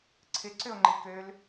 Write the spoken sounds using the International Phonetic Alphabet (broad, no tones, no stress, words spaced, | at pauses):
ǀʰɪǀʏo̯ŋ͡ǃi køl